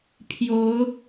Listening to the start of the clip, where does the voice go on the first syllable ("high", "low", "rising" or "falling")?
rising